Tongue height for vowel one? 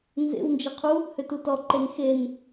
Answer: mid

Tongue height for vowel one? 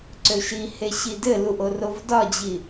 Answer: mid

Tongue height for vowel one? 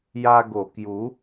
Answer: low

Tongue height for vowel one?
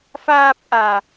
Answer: low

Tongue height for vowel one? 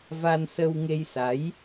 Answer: low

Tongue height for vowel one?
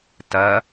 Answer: low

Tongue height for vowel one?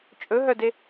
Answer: mid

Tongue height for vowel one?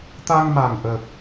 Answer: low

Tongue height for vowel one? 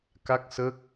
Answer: low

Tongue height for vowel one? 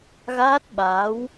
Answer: low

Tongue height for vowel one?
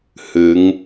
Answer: high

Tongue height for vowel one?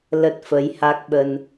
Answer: mid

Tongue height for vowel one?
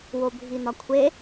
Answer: mid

